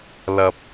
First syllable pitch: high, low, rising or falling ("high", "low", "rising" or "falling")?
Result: low